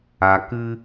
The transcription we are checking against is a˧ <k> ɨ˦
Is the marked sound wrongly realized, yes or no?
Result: no